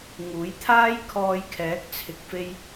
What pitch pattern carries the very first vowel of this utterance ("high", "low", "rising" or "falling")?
rising